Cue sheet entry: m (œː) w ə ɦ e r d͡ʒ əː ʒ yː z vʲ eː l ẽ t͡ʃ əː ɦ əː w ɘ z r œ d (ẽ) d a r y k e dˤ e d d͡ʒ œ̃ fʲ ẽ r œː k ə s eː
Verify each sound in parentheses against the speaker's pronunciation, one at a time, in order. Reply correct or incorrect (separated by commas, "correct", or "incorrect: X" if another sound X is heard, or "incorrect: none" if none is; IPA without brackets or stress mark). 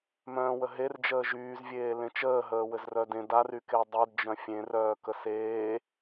incorrect: œ̃ː, correct